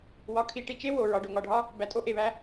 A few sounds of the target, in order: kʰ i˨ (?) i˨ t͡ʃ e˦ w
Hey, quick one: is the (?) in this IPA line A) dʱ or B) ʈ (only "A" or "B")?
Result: B